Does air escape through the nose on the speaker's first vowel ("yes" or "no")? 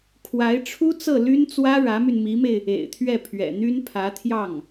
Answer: no